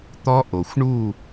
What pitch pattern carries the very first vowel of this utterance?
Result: high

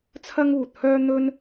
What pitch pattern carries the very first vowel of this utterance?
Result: high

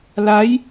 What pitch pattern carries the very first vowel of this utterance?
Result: rising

